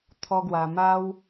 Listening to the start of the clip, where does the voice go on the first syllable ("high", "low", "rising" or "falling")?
high